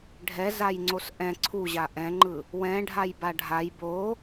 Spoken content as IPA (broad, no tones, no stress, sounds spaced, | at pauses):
ɖʱ ɛ z a j ŋ͡ǀ o s ʔ ɛ̃ ǀʰ u ʑ a ʔ ɛ̃ ŋ͡ǃ ɯ | w ɛ̃ ɖʱ a j b a ɖʱ a j b o